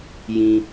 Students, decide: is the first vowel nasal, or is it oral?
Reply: nasal